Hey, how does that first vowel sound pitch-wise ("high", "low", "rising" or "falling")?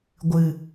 low